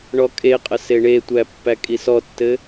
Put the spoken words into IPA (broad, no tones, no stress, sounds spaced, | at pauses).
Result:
ɳ ɔ kʼ e qʼ ə s e ɳ e tʷ æ pː æ kʼ i s ɔ tː ɘ